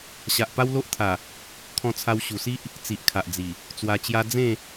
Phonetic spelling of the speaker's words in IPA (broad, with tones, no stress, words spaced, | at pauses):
ɕa˨ʔpa˦wlo˦ʔt̪ʰa˨˩ | kʰɔ̃˧t͡sʰa˧wɕu˨˩si˦ʔ | t͡si˨ʔkʰa˨ʔd͡zi˨˩ | t͡swa˧t͡ɕja˦ d͡zẽ˥˧